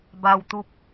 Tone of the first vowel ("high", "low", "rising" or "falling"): low